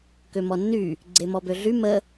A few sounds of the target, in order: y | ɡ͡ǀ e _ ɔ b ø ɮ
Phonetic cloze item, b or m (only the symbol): m